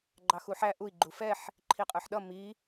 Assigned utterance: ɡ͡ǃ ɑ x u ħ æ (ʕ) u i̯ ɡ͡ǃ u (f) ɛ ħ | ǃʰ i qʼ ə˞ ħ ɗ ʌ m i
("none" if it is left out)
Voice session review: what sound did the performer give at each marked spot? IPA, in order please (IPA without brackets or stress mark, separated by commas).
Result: ʔ, f